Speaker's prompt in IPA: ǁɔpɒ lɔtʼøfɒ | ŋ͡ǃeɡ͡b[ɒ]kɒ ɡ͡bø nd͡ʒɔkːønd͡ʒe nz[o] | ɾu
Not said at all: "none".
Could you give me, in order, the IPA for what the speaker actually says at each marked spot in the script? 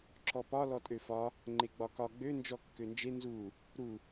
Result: ɒ, u

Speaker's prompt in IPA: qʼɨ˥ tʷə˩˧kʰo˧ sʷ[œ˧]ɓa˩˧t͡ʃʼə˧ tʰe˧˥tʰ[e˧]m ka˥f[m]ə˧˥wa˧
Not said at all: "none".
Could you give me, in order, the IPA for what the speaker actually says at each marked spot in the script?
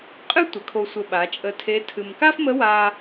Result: ə˧, ɨ˧, m

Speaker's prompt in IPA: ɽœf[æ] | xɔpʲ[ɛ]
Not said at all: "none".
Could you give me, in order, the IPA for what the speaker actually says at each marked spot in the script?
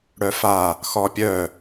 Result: a, œ

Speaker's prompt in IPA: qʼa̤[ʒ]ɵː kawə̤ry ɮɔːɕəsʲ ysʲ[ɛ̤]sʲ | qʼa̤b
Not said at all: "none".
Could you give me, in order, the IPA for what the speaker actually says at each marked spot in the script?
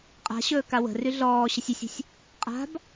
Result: ɕ, ə̤

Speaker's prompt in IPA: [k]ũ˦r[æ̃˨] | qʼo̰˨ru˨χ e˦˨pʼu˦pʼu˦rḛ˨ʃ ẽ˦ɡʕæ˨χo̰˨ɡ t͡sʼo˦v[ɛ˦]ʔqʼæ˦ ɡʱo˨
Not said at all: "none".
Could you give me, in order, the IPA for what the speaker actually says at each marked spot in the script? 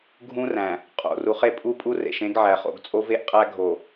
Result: ɡʱ, æ̃˨, e˦

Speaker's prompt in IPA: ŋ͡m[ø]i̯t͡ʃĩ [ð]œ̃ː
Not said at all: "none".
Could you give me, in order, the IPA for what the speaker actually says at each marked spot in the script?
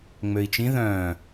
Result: ø, ð

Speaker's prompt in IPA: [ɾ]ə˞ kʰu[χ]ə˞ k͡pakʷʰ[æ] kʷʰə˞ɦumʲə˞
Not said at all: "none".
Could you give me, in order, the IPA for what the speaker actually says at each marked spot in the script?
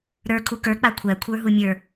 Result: ɾ, k, æ

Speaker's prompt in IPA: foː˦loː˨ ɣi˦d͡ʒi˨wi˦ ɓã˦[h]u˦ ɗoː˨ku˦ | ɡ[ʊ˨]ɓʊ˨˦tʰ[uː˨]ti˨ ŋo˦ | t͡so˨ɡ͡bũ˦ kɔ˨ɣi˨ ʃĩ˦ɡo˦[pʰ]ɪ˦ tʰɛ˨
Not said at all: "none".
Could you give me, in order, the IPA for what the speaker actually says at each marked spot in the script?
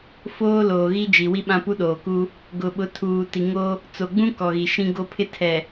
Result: p, ʊ˨, uː˨, pʰ

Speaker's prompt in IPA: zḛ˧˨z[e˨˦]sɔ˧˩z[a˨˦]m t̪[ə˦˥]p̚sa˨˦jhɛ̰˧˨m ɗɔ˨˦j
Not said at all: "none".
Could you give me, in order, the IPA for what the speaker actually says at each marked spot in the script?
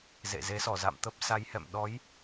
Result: e˨˦, a̰˧˨, ə˦˥

